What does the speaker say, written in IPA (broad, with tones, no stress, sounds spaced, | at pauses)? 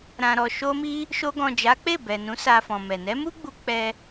ɾ ã˨ ɾ ɔ˨ ʃ o˧ m i˧ | ʃ o˧ ɡ ɔ̃˨ d͡ʒ a˨˦ k͡p e˦˨ b ɛ˨ n ũ˨˦ s a˧ f ɔ̃˨ m ɛ˨ n ɛ˨˦ m u˦ ɡ͡b u˧ k͡p ɛ˦